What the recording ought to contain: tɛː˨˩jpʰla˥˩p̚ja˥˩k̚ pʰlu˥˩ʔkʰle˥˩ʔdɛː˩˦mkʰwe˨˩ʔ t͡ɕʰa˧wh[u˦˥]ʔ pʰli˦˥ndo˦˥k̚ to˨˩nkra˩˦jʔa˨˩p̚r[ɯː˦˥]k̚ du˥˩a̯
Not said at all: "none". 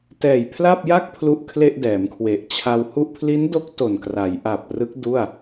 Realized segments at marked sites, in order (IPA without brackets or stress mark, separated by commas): u˥˩, ɯ˦˥